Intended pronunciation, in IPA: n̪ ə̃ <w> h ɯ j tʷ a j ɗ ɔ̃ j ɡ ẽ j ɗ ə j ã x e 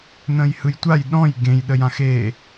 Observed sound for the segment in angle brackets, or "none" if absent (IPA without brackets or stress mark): j